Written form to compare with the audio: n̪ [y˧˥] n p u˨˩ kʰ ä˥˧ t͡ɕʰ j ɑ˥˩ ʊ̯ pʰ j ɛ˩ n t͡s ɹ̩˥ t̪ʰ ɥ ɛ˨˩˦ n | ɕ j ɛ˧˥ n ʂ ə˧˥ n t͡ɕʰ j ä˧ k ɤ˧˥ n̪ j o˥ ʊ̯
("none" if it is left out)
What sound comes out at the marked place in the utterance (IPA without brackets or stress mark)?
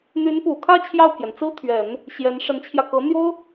y˧˥